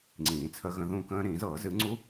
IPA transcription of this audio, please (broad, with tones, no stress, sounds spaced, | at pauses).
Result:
ŋ͡ǀ ĩː˨˩˦ t͡sʰ ə˦˥ ɣ ə̃˧˥˧ ð ũ˥˨ k ə̃ː˦˥ ɾ ĩː˨˩˦ z ɤː˨˩˦ z ɨ˨˦ ŋ͡ǀ u˦˥